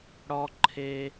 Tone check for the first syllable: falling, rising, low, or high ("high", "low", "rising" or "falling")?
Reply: high